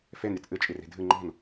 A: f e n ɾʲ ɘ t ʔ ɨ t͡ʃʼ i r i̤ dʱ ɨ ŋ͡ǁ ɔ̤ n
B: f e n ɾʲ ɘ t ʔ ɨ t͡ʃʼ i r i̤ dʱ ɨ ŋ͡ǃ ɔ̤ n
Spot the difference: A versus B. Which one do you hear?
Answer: B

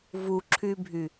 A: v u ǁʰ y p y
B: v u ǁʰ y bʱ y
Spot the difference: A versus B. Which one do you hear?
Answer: B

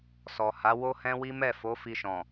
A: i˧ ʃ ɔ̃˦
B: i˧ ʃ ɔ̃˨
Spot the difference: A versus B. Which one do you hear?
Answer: B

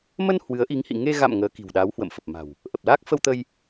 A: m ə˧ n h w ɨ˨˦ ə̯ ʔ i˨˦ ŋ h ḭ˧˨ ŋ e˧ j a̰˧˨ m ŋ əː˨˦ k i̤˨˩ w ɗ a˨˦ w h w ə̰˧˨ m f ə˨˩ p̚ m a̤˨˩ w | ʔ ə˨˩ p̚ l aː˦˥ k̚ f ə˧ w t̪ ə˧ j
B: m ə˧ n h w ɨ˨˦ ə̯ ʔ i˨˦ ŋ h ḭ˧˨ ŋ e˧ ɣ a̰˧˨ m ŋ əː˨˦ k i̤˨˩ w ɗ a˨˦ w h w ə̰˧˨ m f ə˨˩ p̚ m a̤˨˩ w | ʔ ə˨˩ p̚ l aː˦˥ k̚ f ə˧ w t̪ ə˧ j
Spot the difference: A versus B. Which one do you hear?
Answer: B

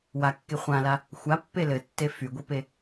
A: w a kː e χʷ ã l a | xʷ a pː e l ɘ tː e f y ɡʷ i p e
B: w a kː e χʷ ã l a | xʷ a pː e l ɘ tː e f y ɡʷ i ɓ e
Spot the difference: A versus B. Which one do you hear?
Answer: A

